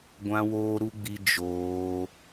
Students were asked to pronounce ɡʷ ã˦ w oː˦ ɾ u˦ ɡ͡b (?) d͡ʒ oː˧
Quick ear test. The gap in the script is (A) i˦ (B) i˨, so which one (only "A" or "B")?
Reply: A